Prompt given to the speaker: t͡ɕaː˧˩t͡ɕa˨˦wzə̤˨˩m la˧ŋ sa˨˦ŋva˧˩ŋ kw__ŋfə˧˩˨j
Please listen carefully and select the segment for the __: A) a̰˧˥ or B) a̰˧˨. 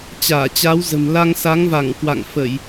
B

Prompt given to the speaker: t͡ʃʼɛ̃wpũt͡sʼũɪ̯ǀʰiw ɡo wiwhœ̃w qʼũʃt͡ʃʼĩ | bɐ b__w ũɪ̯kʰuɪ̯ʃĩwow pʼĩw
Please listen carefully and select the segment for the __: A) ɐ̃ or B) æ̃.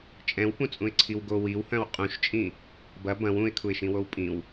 A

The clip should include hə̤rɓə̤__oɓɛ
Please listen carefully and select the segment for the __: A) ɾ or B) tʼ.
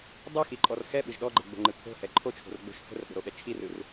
A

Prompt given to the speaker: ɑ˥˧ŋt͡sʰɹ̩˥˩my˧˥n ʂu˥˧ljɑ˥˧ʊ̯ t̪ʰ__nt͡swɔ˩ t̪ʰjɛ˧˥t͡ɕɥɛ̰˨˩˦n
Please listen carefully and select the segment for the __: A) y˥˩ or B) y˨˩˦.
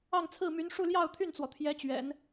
A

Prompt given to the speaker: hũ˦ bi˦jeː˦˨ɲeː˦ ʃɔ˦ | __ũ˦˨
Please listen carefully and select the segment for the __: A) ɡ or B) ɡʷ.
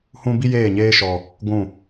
B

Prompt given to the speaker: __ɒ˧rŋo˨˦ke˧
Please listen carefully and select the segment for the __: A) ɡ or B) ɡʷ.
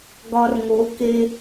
A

